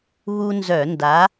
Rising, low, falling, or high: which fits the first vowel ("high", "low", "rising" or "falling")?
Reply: high